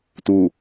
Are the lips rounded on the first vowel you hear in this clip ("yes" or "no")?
yes